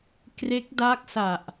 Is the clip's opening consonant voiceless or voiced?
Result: voiceless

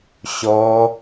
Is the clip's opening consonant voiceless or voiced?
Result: voiceless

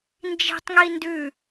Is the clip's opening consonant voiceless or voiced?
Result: voiced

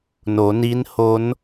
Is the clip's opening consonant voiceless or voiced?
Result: voiced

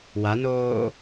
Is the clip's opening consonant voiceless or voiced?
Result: voiced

